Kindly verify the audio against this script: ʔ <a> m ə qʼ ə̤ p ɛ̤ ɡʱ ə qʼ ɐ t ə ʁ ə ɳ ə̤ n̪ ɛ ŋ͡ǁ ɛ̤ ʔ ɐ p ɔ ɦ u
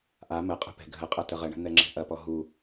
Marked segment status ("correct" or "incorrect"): correct